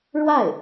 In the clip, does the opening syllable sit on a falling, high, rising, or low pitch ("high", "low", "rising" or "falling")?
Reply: falling